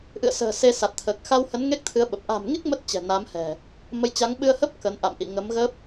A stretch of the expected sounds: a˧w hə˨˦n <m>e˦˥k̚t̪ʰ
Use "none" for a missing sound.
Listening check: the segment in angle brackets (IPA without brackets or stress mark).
ŋ